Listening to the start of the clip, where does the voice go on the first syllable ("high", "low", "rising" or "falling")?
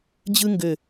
high